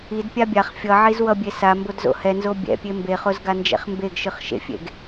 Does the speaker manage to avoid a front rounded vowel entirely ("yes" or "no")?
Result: yes